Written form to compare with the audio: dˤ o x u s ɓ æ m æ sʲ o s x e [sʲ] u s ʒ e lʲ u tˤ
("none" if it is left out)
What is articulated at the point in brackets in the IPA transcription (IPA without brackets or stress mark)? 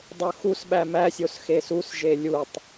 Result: s